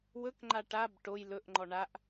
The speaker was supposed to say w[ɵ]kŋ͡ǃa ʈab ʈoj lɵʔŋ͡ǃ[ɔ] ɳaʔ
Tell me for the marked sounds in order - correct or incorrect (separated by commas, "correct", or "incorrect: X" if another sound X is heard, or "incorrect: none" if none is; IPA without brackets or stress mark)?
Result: correct, correct